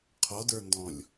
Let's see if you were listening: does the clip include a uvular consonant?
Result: yes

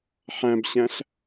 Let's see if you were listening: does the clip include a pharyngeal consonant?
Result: yes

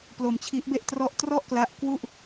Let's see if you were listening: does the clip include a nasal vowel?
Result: no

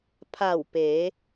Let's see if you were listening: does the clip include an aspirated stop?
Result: yes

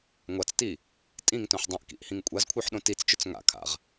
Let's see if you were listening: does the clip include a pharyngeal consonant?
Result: yes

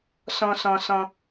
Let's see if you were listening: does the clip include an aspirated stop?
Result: no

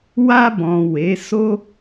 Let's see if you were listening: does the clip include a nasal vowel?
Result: yes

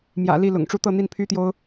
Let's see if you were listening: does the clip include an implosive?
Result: no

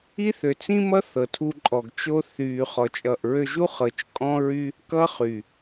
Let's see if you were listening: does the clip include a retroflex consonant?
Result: no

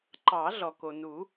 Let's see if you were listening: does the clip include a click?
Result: yes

